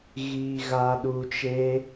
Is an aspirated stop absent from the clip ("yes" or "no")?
yes